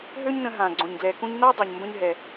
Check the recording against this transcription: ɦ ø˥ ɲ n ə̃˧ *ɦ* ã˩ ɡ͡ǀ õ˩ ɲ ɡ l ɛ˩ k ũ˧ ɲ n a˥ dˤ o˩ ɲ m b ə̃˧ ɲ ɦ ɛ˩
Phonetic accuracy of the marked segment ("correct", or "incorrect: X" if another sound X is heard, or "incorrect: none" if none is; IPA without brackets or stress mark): correct